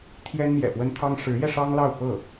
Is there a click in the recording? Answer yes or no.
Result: no